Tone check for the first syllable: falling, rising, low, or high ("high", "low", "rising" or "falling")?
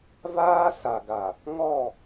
high